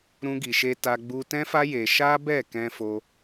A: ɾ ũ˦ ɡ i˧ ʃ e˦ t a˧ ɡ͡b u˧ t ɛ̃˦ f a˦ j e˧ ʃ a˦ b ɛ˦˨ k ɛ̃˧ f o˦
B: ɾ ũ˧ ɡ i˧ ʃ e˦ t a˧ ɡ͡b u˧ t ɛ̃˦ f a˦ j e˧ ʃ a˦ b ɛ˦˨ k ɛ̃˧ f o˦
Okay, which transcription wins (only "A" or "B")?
A